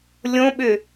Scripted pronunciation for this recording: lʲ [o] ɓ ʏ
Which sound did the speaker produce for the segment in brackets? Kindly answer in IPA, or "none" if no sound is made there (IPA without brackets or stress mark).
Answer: õ